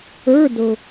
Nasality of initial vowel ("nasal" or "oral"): oral